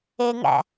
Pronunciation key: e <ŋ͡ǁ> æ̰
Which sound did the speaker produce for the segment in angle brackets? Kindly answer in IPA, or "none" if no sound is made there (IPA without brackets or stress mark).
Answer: ŋ